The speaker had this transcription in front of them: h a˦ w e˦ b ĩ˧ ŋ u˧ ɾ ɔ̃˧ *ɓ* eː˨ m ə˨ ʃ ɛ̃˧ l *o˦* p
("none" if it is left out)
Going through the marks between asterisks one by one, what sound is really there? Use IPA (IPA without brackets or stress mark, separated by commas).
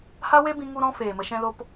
f, o˧